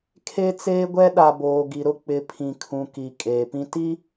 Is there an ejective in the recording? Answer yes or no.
yes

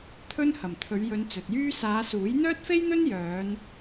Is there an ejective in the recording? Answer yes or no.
no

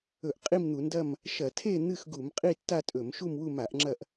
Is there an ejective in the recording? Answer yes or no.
yes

